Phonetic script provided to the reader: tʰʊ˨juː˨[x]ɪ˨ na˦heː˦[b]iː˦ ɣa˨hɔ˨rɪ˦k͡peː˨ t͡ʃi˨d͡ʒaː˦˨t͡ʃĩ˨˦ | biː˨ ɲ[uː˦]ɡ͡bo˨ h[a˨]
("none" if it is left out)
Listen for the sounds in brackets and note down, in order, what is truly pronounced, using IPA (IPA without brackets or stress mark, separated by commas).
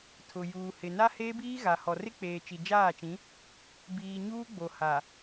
h, b, uː˦, a˨